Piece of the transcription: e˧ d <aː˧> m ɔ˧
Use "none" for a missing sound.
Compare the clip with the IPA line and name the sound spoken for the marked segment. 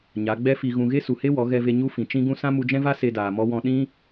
aː˨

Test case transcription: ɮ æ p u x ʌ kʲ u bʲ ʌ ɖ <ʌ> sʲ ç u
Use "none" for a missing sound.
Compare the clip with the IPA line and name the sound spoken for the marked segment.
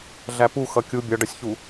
ʌ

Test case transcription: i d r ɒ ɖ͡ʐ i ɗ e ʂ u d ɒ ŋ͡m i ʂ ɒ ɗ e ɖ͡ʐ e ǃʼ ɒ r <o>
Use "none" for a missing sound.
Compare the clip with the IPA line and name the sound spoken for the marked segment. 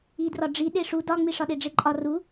u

